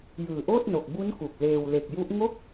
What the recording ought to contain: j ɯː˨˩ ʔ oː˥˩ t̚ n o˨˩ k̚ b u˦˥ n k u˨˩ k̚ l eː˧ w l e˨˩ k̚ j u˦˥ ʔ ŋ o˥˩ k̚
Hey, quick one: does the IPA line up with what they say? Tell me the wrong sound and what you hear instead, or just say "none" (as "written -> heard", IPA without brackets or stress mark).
none